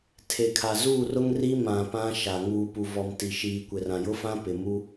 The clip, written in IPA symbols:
tʰ e˨ kʰ a˨ z uː˦˨ r ʊ˦ ŋ r i˦ m ã˨ p ã˦ ʃ a˨ ŋ uː˨ p u˨ v ɔ˨ m t i˨ ʃ iː˨ kʷ ɪ˨ r ã˨ j ʊ˦ f ã˦ p ɪ˨ m u˦

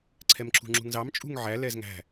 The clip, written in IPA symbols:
ǀʰ ɛ m ǁ ṳ ŋ͡ǁ ṳ ŋ z ɑ m t͡ʃʼ ṳ ŋ ʕ æ l ɛ z ŋ æ̤

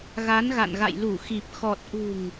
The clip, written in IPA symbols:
ɣ a˨˦ n ɣ a̰˧˨ n ɣ a̰˧˨ j l u˧˩ x i˨˩ p̚ x ɔ˨˩ t̚ ʔ ṳ˨˩ ŋ

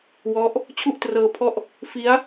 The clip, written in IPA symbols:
w ɔ˦˥ ʔ | t͡ɕʰ u˥˩ ʔ t r ɤː˧ pʰ ɔ˥˩ ʔ | f i˦˥ a̯

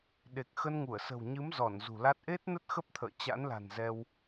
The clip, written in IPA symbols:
ɗ e˨˩ k̚ x ə˧ n ŋ u˧˩ ə̯ s ə̤˨˩ w ɲ ɨ˨˦ m z ɔ˧˩ n z ṳ˨˩ l a˦˥ t̚ ʔ e˦˥ t̚ n ə˦˥ t̚ x ə˦˥ p̚ t̪ʰ ə̰ː˧˨ t͡ɕ a̰˧˥ n l a̤˨˩ n z ɛ˧ w

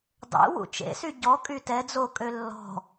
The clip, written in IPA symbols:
dˤ ḛ w ṵ t͡ʃ ḛ s y ɟ ɔ kʼ y t ɛ d͡z o kʼ ø lː ɔ̤

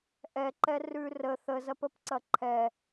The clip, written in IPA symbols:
ʔ ɛ ǃ ɛ r ʉ r ə θ ə z ɐ p ə p ǀ ɐ ǃʰ ɛ

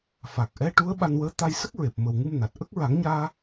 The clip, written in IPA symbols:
f a˨˩ k̚ ʔ ɛ˧˥ ʈ u˧˥ ə̯ ɓ a˧ n w əː˧˥ t̪ a˧ j s ə˦˥ k̚ ɹ e˨˩ p̚ m ə˨˩ w ŋ ɨ˧ m n a˨˩ t̚ ʔ ə˦˥ k̚ ɹ a˨˩˦ ŋ ɲ aː˧

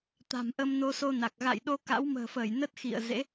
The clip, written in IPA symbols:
t̪ a̤˨˩ m ʔ ə˧ m n o˧ s o˧ n a˨˩ k̚ ɣ a̰˧˨ j ɗ o˧ k a̰˧˥ w m ə̤ː˨˩ f əː˧˩ j n ə˦˥ t̚ x ḭ˧˨ ə̯ z ḛ˧˥

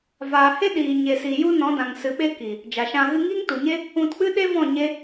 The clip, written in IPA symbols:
v aː˨ h e˦ ɗ iː˨ ɲ e˨ s i˨ j u˦ n ɔ̃˨˦ d ã˨ ŋ s ɨ˨ ɓ e˦ k i˨ | d͡ʒ a˨ ʃ ã˧ ɣ ɨ˧ ŋ iː˦ ŋ t u˨ ɲ e˦ | ũ˧ t k͡p ɨ˦ ɗ e˦ v ɔ̃˦˨ ɲ e˦

